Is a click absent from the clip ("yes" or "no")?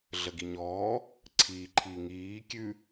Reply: no